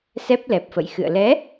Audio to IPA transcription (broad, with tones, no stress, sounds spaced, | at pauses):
s ɛ˦˥ p̚ l ɛ˨˩ p̚ f ə̰˧˨ j x ɨ̰˧˨ ə̯ l ɛ˨˦